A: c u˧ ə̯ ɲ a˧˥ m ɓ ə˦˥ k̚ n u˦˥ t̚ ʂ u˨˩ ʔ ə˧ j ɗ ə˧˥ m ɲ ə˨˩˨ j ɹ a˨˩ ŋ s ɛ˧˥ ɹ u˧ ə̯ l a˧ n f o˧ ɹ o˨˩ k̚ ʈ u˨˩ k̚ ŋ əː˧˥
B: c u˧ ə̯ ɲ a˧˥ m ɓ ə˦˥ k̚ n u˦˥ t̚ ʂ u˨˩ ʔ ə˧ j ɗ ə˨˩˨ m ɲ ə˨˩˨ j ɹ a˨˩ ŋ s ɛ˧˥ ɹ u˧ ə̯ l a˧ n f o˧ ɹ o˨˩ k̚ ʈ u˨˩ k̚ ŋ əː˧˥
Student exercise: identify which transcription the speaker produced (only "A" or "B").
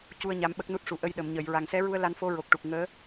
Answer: B